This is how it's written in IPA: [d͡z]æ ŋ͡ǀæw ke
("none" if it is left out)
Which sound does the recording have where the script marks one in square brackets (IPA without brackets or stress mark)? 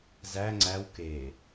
z